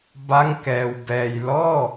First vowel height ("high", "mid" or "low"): low